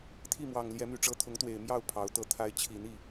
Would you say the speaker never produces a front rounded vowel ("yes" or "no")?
no